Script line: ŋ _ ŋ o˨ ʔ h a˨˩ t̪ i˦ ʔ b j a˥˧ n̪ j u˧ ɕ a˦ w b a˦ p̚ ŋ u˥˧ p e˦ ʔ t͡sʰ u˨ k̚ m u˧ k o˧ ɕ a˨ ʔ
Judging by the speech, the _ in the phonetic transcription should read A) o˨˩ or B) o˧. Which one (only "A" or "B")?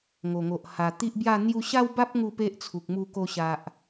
A